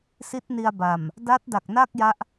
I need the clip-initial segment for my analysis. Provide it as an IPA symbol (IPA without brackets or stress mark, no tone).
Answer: s